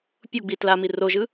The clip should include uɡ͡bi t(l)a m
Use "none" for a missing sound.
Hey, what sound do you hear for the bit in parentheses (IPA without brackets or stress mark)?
l